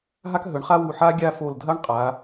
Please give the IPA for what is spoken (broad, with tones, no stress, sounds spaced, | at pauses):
ɦ a˥ k ɦ ɵ˨˦ ɳ χ a˥ w u˧˩ ħ a˥ ɡʲ a˥˧ f o˧˩ l dʱ ɐ˥ ɳ qʼ a˨˦